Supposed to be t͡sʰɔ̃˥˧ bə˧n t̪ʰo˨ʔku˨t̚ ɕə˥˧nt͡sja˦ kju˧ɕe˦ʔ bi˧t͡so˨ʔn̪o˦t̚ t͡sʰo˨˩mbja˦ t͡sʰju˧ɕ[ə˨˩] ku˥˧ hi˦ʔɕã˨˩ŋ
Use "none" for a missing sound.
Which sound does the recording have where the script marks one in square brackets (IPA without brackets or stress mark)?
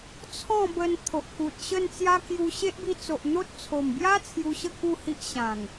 ə˥˧